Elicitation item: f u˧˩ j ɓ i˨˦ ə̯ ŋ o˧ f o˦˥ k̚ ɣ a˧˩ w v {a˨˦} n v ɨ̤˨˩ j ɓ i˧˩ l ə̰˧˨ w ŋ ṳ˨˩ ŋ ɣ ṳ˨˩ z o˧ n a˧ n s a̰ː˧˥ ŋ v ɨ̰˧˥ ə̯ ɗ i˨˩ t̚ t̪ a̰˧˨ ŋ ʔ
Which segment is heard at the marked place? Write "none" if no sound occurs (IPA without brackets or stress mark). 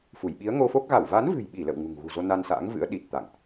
a˨˦